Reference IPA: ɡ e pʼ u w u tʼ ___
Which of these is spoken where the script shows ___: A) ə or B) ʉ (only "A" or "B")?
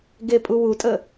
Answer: A